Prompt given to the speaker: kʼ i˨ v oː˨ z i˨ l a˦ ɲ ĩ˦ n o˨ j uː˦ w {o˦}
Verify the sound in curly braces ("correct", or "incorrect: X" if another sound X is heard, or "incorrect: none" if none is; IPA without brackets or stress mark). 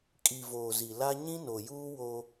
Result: correct